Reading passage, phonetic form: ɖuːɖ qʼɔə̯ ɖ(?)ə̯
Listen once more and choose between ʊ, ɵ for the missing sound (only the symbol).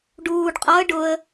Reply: ʊ